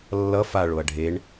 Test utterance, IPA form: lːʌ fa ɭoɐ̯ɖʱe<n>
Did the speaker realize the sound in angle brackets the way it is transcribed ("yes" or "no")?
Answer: no